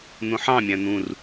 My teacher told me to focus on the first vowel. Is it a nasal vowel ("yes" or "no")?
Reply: yes